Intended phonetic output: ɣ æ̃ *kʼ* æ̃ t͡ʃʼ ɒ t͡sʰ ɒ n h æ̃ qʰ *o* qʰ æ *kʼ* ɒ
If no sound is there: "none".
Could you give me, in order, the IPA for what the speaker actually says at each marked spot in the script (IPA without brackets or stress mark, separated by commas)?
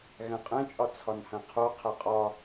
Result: qʼ, o, qʼ